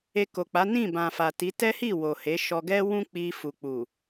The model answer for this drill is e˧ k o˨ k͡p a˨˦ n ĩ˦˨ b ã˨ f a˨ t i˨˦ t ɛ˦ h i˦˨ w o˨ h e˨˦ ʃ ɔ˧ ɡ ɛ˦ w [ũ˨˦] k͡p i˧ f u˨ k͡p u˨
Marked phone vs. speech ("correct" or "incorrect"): incorrect